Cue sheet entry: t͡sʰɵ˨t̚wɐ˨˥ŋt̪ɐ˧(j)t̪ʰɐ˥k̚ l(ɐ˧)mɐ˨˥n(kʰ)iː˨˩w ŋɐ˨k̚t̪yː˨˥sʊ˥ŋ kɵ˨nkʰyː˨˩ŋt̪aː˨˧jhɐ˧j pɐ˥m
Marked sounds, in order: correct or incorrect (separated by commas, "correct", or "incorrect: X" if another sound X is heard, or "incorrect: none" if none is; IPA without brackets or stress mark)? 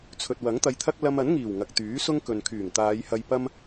correct, correct, incorrect: ŋ